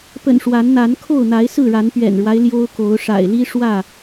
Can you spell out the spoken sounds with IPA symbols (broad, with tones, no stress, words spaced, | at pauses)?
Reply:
pə̰˨˩n ʂwa˨˦nn̪a˨˦n kʰo˥˨ʊ̯n̪a˨˦ɪ̯sɹ̩˥˨ɻa˨˦n pɥɛ̰˨˩nɻwa˦ɪ̯ ljo˦ʊ̯ko˨˦ʊ̯ ʂa̰˨˩ɪ̯li˦ʂwä˥˨